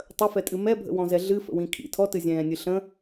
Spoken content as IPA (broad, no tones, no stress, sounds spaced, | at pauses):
tˤ ə f ɛ tʼ ɨ m ɛ bʱ ə̰ w ɔ̃ z ɛ ɮ ɨ f ə̰ w ĩ kʰ ḭ tʰ ɔ t ɨ zʲ ɛ̃ː nʲ ɨ ɬ ə̃